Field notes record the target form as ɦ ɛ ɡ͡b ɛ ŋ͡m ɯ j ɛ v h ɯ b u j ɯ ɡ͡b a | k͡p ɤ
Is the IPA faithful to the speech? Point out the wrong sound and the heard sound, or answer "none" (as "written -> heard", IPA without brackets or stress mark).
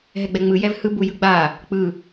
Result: ɤ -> ɯ